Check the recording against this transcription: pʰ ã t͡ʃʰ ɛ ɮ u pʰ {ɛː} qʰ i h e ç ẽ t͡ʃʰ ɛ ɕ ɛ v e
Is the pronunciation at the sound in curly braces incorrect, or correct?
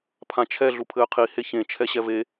incorrect: ɘː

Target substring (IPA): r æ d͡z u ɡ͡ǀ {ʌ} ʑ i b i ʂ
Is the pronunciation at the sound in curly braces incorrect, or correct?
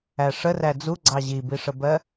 incorrect: ɑ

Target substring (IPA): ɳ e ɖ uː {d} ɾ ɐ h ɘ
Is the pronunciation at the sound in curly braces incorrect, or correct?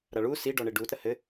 incorrect: t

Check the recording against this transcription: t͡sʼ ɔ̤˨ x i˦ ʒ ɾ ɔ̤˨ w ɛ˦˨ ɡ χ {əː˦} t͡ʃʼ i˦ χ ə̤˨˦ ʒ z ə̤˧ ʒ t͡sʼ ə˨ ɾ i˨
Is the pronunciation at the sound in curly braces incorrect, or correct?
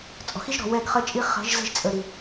incorrect: ə˦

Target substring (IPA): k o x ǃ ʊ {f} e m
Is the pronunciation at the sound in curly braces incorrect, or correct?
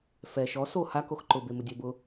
incorrect: b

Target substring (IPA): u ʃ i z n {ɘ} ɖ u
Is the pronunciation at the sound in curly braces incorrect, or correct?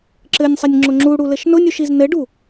correct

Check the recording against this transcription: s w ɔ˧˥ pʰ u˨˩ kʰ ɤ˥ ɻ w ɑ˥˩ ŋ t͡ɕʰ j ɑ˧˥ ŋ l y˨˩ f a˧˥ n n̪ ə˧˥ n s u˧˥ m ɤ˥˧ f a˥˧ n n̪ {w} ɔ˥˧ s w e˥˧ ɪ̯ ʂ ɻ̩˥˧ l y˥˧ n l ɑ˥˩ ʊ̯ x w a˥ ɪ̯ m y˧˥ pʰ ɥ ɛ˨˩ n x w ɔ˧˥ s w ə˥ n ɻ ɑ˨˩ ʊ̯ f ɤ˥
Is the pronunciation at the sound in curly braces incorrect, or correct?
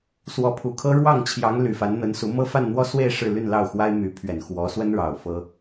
correct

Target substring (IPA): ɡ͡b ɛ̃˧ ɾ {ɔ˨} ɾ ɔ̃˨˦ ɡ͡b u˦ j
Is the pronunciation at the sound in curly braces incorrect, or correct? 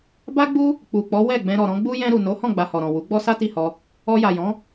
correct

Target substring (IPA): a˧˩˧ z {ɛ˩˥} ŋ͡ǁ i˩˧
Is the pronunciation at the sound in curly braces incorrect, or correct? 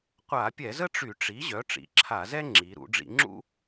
incorrect: ɛ˥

